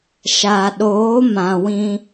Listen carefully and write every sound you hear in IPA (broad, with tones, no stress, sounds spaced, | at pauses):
ʃ a˨ ɗ oː˨˦ m ã˨ w ĩ˧